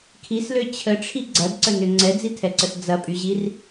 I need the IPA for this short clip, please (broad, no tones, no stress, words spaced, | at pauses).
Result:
kʰislø t͡ɕʰəʈ͡ʂʰi ɡ͡ǀɐdǀənʏ ŋ͡ǀɛd͡zitʰɛǀəs d͡zɐpʼyʑir